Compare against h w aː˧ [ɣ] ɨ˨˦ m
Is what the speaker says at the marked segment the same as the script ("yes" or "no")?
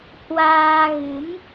yes